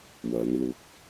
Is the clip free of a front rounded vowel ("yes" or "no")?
yes